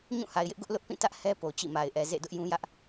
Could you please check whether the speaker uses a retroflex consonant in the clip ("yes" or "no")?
no